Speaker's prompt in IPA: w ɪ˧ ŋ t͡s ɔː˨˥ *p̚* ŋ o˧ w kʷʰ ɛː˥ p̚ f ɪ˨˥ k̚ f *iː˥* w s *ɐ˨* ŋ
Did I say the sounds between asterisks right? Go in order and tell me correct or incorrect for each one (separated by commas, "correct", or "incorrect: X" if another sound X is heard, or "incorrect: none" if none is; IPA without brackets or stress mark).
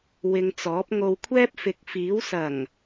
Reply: correct, incorrect: iː˨˥, incorrect: ɐ˨˩